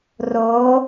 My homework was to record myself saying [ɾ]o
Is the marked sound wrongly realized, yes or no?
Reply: yes